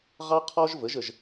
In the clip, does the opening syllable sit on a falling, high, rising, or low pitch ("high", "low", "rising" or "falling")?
high